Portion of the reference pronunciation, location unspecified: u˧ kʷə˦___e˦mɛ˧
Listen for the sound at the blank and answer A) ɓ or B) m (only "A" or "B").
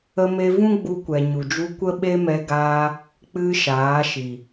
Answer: A